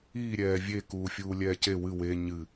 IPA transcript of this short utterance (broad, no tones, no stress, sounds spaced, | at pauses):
iː ɾʲ ɛː vʲ e k uː fʲ uː lʲ ɛː c e w ɨ w e ɲ ɨ